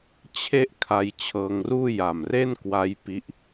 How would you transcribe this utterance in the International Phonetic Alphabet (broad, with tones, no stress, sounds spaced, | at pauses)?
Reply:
t͡ɕʰ e˥˩ ʔ kʰ a˧ j t͡ɕʰ ɤː˧ ŋ r uː˥˩ j a˨˩ m r e˥˩ n k w a˦˥ j p i˦˥ ʔ